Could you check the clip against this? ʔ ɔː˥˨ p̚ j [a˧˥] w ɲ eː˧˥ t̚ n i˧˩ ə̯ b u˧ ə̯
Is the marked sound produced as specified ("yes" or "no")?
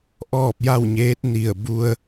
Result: no